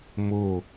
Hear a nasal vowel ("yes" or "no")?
no